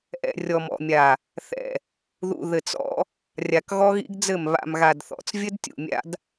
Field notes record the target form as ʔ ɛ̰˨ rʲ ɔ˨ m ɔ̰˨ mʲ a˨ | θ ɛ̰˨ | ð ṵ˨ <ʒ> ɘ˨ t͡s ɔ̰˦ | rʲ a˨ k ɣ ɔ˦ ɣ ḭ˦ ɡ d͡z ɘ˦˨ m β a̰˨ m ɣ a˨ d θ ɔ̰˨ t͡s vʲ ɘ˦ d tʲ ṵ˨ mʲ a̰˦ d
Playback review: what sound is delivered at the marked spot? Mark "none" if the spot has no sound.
ð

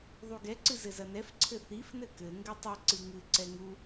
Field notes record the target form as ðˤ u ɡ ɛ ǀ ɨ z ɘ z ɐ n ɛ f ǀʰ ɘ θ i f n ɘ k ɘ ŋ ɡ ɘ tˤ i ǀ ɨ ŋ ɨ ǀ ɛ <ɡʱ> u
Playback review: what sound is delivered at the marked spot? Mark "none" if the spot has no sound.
ŋ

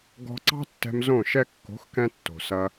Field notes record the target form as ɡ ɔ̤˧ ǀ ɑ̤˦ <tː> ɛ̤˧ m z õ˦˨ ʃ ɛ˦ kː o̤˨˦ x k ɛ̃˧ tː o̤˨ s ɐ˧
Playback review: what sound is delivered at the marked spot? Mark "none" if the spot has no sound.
tː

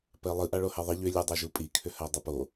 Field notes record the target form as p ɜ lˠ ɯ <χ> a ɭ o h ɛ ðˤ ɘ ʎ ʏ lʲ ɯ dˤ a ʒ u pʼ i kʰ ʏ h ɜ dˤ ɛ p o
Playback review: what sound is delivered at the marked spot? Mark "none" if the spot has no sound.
ʔ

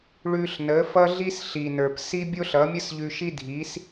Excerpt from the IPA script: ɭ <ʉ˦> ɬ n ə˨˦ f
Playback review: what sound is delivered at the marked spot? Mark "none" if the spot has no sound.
ʉ˧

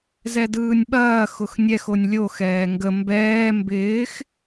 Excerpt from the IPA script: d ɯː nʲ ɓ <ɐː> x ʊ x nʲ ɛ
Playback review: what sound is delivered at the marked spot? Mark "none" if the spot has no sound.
ɐː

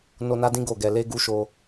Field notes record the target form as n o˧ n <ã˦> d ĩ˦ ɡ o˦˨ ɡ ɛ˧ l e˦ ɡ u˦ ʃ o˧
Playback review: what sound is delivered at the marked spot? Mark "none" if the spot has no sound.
a˦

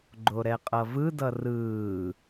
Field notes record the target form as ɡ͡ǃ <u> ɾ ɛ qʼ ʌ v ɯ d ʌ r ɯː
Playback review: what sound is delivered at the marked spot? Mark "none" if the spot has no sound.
o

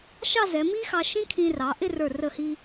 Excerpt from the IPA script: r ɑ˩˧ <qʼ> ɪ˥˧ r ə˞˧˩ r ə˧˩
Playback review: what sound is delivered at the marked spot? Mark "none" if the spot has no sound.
ʔ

